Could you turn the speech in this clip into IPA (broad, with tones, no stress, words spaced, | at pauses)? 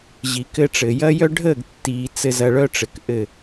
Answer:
ʑi˨kɘ˦ʈ͡ʂɘ˨ jɐ˦jœ˦ɖʱəː˦˨ɡtːiː˨ t͡sɘ˨zɐ˨ ɭœ˦ʈ͡ʂɘ˨k ʔɘ˦˨